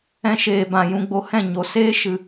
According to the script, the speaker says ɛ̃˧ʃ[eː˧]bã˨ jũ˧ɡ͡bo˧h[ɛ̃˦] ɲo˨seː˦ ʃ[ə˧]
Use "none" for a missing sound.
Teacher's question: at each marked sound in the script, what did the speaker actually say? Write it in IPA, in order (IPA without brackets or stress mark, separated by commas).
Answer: eː˨, ɛ̃˦˨, ɨ˧